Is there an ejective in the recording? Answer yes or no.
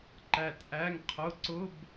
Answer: no